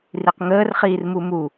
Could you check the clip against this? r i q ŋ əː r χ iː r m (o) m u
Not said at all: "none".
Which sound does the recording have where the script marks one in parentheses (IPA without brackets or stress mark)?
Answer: u